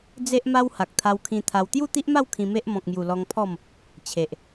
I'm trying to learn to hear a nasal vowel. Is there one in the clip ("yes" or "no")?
yes